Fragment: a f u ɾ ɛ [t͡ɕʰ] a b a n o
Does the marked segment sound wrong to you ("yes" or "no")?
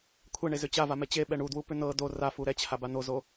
no